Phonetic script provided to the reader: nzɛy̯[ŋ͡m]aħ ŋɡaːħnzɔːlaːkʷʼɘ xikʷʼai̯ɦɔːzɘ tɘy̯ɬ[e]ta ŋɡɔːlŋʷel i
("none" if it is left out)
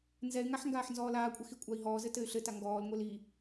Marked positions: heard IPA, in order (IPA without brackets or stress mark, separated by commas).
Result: ŋ, ɘ